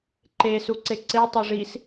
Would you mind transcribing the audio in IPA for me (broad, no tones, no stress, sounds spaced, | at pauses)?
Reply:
ǃ e s u ǀ e ǀ e tˤ o ʐ i s